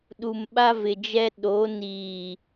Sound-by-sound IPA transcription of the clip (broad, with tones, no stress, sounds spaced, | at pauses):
ɗ u˨ m ɓ a˦ v ɪ˨ d͡ʒ ɛ˦ ɗ o˨˦ n iː˨